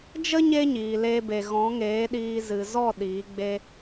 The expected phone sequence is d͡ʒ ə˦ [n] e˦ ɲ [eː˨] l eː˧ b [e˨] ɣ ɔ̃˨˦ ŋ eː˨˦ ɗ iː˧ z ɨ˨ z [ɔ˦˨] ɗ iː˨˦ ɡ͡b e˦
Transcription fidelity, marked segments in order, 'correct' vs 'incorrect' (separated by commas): incorrect, incorrect, correct, correct